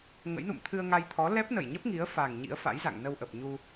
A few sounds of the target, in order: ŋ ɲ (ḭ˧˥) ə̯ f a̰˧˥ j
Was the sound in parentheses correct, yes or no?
yes